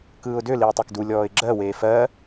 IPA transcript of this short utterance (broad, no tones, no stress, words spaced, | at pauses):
kɯːʊ̯dø liʊ̯tˤekdu lʲɔːɪ̯ɡ͡ǁɜ weːfɜ